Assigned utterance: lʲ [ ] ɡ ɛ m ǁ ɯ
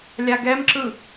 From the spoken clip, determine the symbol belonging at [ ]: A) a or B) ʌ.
A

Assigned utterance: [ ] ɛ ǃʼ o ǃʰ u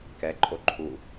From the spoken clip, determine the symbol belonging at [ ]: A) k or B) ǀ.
A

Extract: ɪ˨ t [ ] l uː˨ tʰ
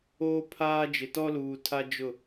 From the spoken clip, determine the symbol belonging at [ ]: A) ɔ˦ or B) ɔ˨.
A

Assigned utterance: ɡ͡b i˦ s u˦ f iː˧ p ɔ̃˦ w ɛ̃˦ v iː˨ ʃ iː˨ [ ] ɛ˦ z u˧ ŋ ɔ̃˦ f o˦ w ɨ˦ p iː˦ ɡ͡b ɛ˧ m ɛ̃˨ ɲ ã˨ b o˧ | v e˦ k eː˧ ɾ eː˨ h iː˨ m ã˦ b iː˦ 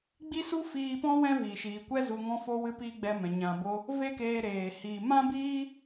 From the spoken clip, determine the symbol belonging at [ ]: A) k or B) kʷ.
B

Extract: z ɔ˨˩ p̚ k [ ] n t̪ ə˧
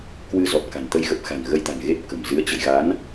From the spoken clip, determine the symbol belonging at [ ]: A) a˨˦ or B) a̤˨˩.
B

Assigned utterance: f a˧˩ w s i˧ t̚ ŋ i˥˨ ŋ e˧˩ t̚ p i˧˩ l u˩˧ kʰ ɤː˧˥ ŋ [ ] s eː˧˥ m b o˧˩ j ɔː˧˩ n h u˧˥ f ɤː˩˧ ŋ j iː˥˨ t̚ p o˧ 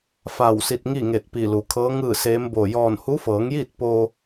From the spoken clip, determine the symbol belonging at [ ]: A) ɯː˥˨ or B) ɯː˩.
A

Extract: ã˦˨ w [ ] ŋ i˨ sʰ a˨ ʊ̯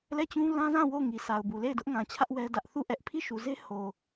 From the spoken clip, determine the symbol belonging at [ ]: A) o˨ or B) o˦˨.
B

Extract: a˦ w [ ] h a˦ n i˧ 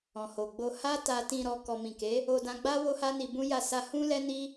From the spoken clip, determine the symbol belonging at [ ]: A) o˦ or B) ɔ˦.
A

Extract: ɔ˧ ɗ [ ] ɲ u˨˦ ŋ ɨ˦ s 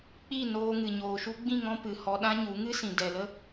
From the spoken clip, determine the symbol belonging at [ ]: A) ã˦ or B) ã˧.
A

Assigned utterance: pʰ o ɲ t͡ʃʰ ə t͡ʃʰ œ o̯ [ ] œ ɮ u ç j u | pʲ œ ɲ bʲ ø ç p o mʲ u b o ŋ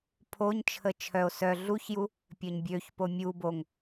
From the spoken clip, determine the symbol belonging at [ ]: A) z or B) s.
B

